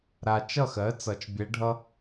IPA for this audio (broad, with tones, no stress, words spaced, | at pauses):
ɾa˨t͡ʃʌ˥˨xɜ˩˥ t͡sʌ˨t͡ʃbʲɛ˧˥ɖʱʌ˥